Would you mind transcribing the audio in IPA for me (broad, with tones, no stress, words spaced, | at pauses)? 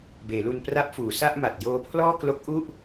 beː˩˦lu˧n pra˦˥p̚fuː˩˦sa˥˩ʔma˨˩t̚ joː˧pʰlɔː˥˩klo˦˥k̚ ʔu˥˩ʔ